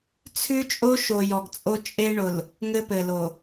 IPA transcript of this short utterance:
t͡sʰ ʉ˦ t͡ʃʼ o˦ ʃ o˨ j ɔ˨ ɡ t͡sʼ o˦ t͡ʃʼ e˦ ɳ ʊ˨ l | ŋ ɘ˦ p ɘ˨ l o˨

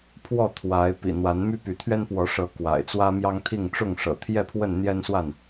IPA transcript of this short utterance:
pʰ w ɔ˥˨ t̪ʰ w a˨˦ ɪ̯ p ḭ˨˩ n̪ w a˨˦ n m y˦ p y˨˦ t̪ʰ ɥ ɛ˦ n p w ɔ˨˦ ʂ ɤ˨˦ k w a̰˨˩ ɪ̯ t͡s w ä˦ m j ɑ˦ ŋ t̪ʰ i˥˨ ŋ ʈ͡ʂ ʊ˥˨ ŋ ʂ ɤ̰˨˩ t̪ʰ j ɛ˥˨ pʰ w ə˥˨ n n̪ j ɛ˦ n s w a˥˨ n

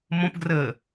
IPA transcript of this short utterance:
m õ p ɡ r əː

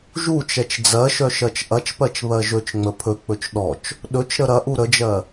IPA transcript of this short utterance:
ʒ u t͡ʃ ɛ t͡ʃ d͡z ɜ ʃ œ ʃ ɜ t͡ʃ ʔ ɐ t͡ʃ p ɜ t͡ʃ β ɜ ʒ ɵ t͡ʃ ŋ͡m ə pʰ ɵ k͡p ɵ t͡ʃ ɗ ɔ t͡ʃ | ɗ ɵ t͡ʃ ɾ ə ɾ ɐ ʔ u ɾ ə d͡ʒ ɜ

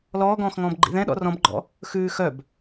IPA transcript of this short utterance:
l ɔː ɡ ɔ̃ː x ŋ ɔ̃ː b ɡ͡ǃ ḭ ð ɛ̃ ɗ ɔ̰ r ɔ̃ b ɡ͡ǃ ɔ̰ | x ʉː x œ b

